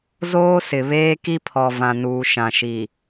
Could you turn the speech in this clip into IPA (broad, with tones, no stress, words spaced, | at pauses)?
zoː˦sɪ˨ βeː˦ki˦pʰɔ˨ vã˨nuː˨ ʃã˨ʃi˨